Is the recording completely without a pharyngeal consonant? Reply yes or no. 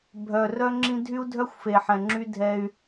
no